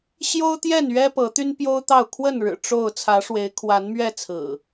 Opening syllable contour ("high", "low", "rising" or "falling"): high